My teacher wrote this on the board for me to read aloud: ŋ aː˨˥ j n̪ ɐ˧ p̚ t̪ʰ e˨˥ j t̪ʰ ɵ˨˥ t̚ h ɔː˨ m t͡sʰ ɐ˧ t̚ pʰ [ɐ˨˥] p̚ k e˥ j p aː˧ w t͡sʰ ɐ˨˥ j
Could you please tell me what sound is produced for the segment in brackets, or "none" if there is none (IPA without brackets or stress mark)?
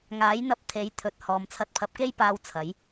ɐ˧